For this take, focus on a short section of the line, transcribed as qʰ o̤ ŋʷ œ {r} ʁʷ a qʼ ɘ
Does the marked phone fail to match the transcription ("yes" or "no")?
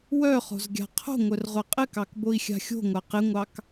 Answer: no